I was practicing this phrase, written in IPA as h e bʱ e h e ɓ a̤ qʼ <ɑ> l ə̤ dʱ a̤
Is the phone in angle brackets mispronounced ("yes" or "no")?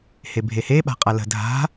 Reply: yes